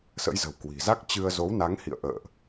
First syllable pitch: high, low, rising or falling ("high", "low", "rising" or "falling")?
rising